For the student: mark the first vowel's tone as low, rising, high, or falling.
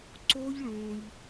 high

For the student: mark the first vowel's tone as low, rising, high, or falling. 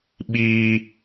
high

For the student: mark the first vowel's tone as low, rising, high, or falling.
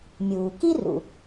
low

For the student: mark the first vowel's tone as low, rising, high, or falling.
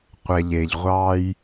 low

